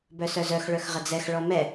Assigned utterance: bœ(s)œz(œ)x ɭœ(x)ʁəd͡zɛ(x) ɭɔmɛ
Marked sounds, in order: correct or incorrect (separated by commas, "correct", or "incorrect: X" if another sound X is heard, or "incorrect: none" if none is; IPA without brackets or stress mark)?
correct, correct, correct, correct